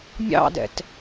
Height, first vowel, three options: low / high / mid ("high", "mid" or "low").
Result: low